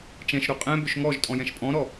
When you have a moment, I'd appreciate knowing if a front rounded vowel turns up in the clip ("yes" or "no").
yes